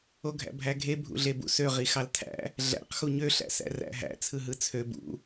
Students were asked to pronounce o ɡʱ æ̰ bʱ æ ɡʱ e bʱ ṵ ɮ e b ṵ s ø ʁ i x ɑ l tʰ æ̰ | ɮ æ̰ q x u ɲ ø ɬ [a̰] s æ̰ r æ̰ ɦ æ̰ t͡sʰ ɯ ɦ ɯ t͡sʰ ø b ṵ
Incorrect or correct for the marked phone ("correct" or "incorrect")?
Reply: incorrect